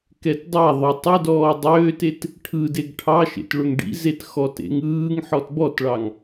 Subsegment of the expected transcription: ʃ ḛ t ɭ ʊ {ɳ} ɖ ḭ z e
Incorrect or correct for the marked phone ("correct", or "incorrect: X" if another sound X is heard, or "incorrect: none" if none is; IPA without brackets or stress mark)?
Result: incorrect: ŋ